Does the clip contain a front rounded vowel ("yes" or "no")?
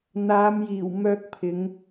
yes